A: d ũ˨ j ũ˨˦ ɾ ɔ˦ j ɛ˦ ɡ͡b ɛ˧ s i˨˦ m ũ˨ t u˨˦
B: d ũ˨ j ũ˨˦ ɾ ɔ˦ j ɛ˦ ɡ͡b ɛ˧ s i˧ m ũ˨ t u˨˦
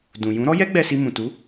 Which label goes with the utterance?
B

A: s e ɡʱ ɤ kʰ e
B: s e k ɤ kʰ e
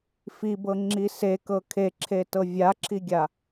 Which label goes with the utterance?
B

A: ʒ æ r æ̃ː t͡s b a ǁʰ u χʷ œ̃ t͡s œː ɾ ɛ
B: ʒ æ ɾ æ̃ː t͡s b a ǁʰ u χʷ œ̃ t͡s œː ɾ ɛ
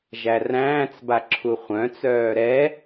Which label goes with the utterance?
A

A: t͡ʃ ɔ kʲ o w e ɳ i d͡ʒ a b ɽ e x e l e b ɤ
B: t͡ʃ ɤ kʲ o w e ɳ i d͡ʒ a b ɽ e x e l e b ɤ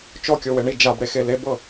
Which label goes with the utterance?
A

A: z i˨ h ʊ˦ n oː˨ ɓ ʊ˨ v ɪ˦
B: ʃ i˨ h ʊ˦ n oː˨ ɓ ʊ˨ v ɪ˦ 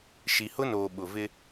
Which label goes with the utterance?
B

